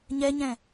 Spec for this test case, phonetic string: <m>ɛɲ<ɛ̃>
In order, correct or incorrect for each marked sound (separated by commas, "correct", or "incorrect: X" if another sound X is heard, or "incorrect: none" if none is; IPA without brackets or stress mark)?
incorrect: ɲ, correct